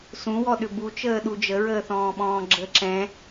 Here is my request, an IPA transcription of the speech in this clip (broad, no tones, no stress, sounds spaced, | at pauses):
s ũ w ɔ ɗ ʏ b u t͡ʃ əː ɗ u d͡ʒ ə ɹ əː θ ɔ̃ː ɓ ɔ̃ː ɡ͡ǁ ə ǁ ɛ̃